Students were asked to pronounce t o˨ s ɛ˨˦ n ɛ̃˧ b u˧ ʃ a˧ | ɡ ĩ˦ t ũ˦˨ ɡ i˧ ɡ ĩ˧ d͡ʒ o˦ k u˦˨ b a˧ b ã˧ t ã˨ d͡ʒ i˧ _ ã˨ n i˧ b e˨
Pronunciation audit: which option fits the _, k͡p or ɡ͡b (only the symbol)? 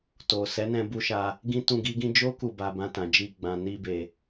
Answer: ɡ͡b